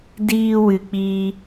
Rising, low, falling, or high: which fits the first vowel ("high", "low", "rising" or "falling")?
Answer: high